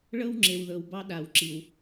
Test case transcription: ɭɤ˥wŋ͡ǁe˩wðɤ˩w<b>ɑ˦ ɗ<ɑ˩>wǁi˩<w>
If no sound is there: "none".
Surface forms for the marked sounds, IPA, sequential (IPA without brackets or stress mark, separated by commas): b, a˩, w